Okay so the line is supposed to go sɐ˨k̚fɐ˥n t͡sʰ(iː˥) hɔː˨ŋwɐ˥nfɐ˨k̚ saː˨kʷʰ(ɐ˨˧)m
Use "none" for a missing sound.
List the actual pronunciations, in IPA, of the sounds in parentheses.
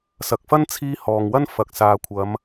iː˥, ɐ˨˧

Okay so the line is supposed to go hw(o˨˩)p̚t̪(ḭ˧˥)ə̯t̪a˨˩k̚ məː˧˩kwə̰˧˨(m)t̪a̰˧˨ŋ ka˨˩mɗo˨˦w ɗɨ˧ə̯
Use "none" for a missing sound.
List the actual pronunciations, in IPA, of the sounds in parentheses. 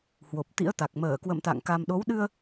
o˨˩, ḭ˧˥, m

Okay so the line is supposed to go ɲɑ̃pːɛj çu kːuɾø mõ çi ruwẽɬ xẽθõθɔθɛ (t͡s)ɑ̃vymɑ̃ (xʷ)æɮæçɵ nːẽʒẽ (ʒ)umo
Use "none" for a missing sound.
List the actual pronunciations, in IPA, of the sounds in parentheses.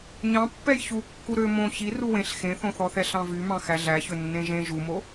ɬ, x, ʒ

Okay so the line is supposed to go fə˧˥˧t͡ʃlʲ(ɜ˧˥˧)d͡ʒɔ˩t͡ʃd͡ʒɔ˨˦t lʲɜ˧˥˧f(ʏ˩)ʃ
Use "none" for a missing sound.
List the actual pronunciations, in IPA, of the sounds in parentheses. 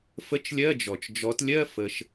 ɜ˧˥˧, ə˩

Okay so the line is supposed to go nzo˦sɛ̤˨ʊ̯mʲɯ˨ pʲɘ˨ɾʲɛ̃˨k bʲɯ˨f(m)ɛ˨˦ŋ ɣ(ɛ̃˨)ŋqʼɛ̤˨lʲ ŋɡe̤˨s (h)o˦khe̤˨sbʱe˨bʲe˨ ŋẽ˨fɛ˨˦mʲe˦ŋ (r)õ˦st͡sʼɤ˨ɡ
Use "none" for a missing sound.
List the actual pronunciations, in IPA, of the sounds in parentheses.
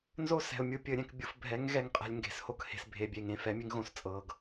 bʱ, ɛ˨, h, ɣ

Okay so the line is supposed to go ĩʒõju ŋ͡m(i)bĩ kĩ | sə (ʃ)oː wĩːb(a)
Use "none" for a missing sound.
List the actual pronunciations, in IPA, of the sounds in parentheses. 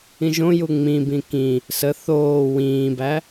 ĩ, θ, æ

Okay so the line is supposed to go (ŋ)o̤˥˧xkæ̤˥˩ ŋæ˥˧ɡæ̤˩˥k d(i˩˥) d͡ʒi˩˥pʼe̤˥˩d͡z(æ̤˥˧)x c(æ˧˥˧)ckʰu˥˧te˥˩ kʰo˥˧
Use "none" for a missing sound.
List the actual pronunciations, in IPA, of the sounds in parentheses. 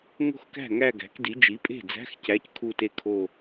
ŋ, i˩˥, æ̤˧˥˧, æ˧˥˧

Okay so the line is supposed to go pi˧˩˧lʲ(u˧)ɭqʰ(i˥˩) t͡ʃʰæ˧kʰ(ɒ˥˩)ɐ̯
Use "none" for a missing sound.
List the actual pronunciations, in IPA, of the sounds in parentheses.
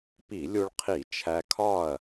u˧, i˧˩˧, ɒ˥˩

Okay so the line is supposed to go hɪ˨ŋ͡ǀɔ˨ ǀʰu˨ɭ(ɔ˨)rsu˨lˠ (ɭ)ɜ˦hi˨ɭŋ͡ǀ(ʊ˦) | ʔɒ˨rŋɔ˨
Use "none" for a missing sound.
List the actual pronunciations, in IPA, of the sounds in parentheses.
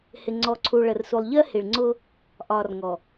ə˨, ʎ, ʊ˦

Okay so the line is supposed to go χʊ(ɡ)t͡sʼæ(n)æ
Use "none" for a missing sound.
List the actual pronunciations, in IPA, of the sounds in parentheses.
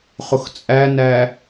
x, n

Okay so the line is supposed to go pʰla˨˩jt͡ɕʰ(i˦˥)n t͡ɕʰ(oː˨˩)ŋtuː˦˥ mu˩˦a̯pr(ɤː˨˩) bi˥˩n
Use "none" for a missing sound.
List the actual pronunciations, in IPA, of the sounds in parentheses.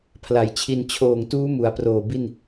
i˧, oː˨˩, oː˨˩

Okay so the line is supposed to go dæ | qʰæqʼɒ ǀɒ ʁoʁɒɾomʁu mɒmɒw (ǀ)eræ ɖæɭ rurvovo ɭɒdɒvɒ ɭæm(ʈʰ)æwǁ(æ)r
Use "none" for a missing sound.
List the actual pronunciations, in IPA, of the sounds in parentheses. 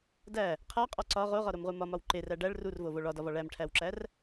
ǃ, ʈʰ, æ

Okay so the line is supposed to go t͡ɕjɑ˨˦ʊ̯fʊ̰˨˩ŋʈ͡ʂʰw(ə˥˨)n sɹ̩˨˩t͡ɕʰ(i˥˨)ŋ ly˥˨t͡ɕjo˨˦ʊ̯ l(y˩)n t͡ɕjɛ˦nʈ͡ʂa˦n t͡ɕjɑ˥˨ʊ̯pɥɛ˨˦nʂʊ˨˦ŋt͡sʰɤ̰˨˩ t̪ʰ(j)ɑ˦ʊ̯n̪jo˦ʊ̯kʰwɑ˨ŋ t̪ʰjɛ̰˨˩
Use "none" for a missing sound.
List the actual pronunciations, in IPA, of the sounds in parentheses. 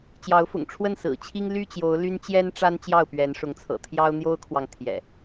ə˥˨, i˦, y˦, j

